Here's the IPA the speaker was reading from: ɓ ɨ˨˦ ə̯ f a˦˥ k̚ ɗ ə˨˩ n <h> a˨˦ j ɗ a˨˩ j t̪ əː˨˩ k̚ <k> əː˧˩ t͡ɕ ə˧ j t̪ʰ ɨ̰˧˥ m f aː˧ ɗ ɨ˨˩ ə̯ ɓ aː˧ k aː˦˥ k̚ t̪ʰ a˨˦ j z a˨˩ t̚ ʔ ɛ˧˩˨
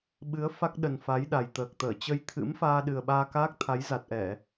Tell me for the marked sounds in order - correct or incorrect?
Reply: incorrect: f, incorrect: t̪

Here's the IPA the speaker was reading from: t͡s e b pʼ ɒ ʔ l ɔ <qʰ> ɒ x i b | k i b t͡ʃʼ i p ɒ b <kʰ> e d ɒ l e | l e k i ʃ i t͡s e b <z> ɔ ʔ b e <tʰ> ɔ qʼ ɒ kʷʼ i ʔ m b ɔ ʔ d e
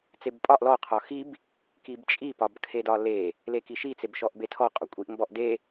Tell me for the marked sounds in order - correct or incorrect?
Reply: correct, correct, incorrect: ʃ, correct

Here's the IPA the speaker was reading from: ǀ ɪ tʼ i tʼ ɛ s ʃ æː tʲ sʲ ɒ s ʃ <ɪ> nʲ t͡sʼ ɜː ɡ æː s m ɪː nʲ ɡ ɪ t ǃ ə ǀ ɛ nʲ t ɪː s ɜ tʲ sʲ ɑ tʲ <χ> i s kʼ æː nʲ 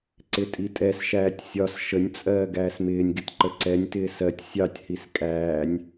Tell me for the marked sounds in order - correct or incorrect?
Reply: incorrect: ə, incorrect: h

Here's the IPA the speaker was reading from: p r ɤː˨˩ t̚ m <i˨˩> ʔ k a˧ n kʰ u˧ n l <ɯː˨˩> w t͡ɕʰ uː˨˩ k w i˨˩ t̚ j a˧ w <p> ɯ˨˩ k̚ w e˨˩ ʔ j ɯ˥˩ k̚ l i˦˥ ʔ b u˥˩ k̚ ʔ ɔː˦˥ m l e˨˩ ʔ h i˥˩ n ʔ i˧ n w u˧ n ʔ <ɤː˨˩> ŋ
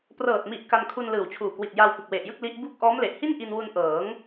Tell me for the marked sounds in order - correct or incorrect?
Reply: correct, correct, correct, incorrect: ɤː˩˦

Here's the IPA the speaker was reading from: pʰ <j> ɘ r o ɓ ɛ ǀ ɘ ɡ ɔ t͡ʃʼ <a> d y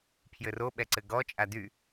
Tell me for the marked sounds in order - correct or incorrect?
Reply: correct, correct

